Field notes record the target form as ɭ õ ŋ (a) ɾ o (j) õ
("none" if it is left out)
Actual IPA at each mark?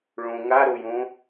a, j

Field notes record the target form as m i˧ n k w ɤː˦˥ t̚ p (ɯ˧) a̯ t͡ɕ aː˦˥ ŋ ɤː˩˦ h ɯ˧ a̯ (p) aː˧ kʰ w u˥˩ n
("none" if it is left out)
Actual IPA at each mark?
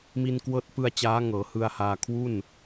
ɯ˧, h

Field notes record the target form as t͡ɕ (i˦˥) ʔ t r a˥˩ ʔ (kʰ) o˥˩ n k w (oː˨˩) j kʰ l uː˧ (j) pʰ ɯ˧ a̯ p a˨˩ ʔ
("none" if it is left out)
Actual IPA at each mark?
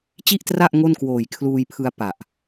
i˥˩, ŋ, oː˨˩, j

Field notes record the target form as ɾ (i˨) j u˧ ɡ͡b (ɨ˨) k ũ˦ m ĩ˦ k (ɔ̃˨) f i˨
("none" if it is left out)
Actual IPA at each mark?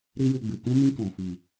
i˦, ɨ˨, ɔ̃˨

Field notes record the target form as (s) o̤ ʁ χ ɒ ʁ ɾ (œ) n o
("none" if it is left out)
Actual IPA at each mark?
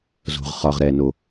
z, ɛ

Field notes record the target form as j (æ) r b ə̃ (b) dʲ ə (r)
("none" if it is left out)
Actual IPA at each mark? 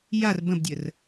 a, b, r

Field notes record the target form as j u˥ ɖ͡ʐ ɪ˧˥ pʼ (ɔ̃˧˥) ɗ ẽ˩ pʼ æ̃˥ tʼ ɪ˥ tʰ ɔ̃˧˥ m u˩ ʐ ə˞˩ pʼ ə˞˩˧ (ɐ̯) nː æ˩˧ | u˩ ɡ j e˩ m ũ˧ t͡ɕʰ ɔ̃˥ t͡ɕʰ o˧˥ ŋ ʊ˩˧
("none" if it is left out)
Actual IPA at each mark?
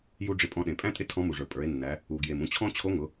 ɔ̃˧˥, e̯

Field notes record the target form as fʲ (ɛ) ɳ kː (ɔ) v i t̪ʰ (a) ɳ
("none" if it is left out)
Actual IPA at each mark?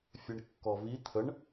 ɛ, ɔ, ə

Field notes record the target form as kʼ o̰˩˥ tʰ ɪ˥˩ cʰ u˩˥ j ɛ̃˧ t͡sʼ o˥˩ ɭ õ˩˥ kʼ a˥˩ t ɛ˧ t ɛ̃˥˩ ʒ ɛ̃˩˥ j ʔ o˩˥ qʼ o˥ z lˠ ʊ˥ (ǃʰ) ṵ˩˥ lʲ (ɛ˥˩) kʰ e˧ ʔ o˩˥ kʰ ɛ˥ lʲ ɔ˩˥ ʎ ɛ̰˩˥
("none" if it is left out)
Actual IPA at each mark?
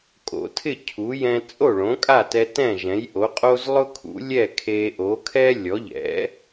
kʰ, ɛ˥˩

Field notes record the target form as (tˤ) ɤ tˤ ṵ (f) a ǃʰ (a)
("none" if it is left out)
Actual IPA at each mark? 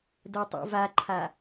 d, v, a

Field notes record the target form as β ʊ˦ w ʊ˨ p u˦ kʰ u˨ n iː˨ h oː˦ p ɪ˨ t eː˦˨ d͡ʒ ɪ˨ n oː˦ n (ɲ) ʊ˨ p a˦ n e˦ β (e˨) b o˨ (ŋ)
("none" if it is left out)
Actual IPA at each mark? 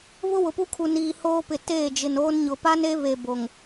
ɲ, e˨, ŋ

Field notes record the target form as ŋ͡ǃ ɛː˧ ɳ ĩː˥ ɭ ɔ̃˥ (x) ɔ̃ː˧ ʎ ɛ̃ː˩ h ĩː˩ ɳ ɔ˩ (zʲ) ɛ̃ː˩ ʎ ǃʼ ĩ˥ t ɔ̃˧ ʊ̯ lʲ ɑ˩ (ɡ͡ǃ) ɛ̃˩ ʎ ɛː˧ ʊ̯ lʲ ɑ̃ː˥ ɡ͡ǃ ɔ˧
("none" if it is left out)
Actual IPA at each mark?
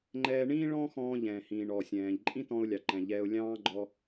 x, sʲ, ǃ

